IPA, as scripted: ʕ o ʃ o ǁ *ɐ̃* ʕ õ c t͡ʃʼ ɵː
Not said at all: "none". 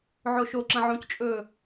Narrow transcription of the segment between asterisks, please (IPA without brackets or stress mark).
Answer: ɐ̃